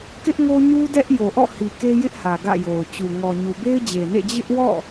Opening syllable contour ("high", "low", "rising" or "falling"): high